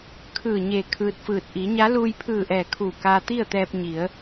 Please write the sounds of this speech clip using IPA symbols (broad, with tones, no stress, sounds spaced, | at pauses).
kʰ ɯː˧˩ ɲ eː˧˩ kʰ ɯː˧ t̚ f ɯː˧˩ t̚ ʔ i˩˧ ɲ a˧˥ l uː˧ j pʰ ɯː˧˩ ʔ ɛː˧˩ kʰ uː˧˩ k aː˧ t̪ i˥˨ ə̯ t̪ ɛː˧ p̚ ɲ i˩˧ ə̯